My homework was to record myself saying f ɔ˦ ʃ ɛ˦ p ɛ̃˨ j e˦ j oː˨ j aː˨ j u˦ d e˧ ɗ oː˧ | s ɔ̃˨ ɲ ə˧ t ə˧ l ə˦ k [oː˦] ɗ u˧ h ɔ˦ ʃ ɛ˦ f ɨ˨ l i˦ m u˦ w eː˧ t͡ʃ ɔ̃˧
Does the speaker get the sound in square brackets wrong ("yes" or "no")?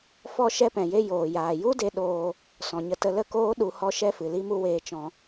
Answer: no